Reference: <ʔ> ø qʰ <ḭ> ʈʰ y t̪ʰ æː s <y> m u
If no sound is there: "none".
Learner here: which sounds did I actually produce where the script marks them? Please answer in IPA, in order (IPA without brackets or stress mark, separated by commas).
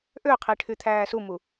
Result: ʔ, i, u